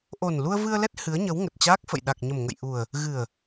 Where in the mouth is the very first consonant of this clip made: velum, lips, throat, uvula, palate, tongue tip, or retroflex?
throat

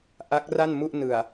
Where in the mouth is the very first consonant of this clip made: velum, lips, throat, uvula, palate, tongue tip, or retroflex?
throat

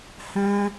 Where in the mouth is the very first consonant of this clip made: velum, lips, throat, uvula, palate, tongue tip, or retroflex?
throat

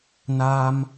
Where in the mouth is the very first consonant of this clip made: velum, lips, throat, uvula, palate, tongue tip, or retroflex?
tongue tip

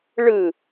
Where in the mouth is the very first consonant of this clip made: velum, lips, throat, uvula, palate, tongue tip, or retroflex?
retroflex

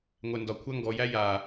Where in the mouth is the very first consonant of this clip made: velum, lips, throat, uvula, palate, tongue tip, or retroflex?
velum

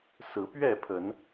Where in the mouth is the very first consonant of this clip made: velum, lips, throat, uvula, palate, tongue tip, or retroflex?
tongue tip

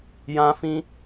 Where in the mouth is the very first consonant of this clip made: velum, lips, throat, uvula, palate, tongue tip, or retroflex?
palate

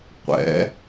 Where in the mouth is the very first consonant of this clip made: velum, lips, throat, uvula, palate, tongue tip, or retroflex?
uvula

